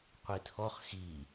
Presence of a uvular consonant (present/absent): present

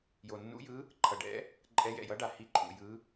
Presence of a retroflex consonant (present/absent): present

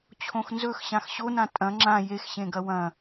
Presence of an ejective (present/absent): present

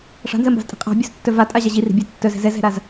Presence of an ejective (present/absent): present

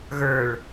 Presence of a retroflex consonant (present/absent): present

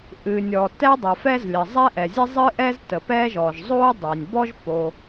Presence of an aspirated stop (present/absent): absent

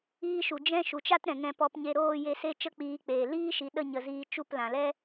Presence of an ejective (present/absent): absent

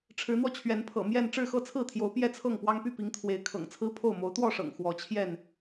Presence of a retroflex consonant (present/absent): present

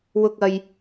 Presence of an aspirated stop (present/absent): absent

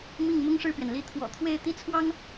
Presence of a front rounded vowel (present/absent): absent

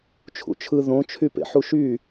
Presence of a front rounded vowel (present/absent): present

